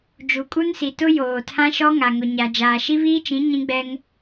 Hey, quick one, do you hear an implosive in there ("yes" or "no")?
no